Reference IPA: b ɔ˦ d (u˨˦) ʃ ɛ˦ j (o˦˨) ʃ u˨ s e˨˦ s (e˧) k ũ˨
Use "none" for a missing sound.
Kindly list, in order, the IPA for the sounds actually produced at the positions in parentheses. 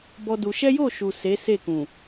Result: u˧, o˦˨, e˦˨

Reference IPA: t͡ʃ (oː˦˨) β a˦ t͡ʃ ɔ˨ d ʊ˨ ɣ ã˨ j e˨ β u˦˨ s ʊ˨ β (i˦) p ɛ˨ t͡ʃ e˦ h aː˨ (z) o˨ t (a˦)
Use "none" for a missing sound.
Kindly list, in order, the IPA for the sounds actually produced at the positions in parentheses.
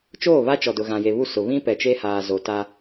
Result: oː˦˨, ĩ˦, z, a˦

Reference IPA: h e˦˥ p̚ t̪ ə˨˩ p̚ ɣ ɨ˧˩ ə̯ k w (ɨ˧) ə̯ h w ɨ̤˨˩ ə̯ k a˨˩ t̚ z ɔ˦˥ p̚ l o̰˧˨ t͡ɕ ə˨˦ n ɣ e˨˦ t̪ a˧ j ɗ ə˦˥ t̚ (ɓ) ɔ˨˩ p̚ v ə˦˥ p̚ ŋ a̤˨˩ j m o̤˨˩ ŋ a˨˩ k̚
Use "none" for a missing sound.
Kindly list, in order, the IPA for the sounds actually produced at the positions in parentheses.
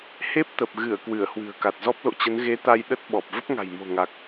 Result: ɨ˧˩, ɓ

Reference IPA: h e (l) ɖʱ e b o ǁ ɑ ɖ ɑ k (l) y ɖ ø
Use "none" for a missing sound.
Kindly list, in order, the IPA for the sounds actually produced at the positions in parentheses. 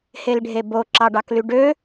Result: l, l

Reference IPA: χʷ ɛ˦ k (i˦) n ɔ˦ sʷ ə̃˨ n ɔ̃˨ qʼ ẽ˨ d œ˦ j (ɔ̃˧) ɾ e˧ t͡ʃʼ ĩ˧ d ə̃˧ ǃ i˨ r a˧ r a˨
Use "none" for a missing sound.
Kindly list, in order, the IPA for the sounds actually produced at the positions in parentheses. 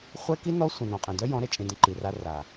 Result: i˦, ɔ̃˨˦

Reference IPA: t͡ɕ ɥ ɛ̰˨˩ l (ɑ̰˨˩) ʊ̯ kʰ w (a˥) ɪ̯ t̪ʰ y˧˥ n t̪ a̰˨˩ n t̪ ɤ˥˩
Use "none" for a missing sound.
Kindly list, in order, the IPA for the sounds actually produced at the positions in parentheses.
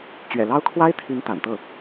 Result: ɑ˥, a˥

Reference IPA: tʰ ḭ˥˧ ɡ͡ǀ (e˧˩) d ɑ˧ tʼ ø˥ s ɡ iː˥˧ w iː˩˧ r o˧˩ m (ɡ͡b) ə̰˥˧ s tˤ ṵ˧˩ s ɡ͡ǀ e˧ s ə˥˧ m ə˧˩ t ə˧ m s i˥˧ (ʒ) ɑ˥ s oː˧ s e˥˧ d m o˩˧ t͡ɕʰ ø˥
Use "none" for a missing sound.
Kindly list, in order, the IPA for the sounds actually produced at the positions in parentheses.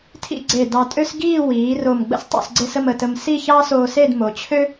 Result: e˧˩, ɡ͡b, ç

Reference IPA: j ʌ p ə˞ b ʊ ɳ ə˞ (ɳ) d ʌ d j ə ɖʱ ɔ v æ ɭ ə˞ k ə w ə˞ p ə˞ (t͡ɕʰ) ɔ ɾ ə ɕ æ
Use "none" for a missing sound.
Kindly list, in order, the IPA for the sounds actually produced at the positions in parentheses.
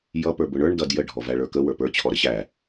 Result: ɳ, t͡ɕʰ

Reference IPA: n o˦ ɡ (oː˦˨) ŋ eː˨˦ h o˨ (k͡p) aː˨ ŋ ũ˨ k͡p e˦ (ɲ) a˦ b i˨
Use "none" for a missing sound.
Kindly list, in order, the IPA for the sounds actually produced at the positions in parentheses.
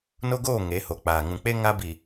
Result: oː˦˨, k͡p, ŋ

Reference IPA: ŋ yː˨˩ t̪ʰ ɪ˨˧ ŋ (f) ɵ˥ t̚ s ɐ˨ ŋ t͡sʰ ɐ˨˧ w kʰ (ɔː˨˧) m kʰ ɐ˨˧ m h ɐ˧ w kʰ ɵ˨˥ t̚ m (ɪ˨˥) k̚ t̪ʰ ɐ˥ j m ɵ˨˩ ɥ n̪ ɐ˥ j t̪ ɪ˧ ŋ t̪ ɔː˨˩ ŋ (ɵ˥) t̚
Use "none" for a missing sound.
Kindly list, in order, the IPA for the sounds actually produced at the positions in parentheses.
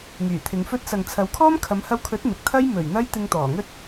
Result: f, ɔː˥, ɪ˨, ɵ˥

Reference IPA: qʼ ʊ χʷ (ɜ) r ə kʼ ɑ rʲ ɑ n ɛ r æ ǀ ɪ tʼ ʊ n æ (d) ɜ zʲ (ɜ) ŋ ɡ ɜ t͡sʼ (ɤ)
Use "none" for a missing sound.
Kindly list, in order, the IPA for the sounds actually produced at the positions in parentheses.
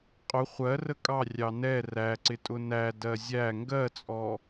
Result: ɜ, d, æ, ɔ

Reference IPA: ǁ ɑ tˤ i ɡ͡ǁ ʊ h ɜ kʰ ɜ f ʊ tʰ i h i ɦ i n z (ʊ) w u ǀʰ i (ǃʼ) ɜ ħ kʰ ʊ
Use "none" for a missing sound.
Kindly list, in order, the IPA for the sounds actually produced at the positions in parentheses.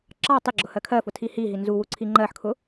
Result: u, ŋ͡ǃ

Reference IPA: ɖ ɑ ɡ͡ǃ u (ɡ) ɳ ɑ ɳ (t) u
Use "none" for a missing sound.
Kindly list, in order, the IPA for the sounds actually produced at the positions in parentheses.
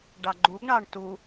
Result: ɡ, t

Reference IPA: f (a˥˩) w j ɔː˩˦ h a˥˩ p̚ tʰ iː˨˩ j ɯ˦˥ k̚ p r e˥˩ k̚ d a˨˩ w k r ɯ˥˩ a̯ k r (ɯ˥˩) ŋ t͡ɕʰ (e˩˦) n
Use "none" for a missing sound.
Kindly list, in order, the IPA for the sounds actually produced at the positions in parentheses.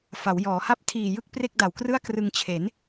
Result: a˩˦, ɯ˧, e˩˦

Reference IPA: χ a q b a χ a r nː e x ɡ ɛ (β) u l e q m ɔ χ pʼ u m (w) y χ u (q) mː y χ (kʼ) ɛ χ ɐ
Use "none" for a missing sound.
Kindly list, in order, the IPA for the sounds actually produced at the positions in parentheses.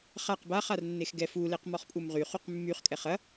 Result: f, ʁ, q, kʼ

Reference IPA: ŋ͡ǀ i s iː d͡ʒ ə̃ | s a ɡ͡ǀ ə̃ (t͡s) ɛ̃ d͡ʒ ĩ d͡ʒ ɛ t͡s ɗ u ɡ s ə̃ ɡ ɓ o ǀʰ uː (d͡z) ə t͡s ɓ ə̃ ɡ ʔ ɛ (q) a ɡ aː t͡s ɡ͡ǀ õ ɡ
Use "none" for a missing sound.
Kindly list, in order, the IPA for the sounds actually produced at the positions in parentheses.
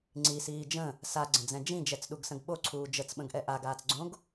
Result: d͡z, d͡ʒ, ʔ

